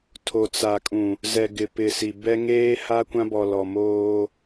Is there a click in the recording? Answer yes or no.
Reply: no